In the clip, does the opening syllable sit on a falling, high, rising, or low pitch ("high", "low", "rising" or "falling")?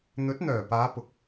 rising